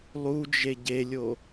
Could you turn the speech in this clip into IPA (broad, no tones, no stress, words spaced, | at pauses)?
lˠud͡ʒe ɟelʲo